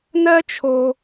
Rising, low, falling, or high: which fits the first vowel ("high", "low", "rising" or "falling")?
high